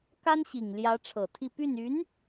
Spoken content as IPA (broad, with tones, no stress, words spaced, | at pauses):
ka˥nɕi˨˩ŋljä˧˥ ʈ͡ʂʰɤ˨˩t̪ʰi˥˧ py˥˩n y˧˥n